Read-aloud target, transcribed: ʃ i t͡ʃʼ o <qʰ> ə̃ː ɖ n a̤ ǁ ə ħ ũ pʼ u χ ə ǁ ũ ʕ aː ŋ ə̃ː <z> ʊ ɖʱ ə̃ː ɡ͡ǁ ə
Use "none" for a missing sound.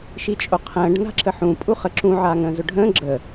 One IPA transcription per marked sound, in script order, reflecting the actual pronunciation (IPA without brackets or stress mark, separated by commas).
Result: qʰ, z